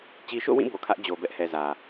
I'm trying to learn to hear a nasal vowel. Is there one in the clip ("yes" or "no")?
yes